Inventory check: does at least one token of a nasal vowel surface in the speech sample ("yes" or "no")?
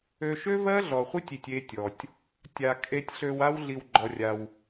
no